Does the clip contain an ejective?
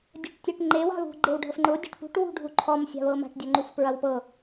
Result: no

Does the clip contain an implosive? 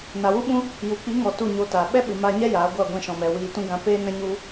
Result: yes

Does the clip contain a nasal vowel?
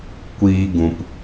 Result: yes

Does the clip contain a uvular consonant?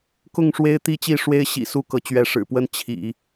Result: no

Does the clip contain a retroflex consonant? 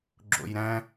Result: no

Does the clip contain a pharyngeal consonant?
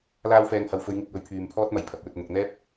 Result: no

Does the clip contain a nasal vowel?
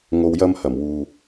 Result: no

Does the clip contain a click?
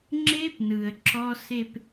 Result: yes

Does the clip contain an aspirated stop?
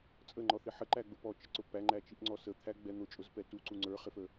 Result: yes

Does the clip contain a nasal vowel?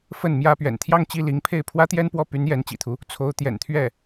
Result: no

